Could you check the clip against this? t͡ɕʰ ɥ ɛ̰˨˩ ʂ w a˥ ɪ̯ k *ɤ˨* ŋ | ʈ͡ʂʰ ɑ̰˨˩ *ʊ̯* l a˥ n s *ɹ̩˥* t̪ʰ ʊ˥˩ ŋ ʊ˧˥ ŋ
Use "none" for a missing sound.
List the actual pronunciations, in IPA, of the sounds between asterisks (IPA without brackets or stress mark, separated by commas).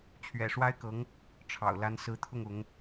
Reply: ɤ˧˥, ʊ̯, ɹ̩˧˥